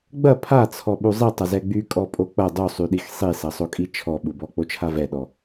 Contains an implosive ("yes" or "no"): yes